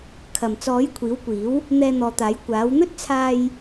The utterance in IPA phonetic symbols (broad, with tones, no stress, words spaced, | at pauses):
kʰɐ˨˩mt͡sɔː˨˥j kʷʰiː˨˥wkʷiː˨˥w | n̪ɛː˧n̪ɔː˨t̪aː˨˥j kʷaː˨˥w n̪ɵ˥t̚ t͡sʰaː˧j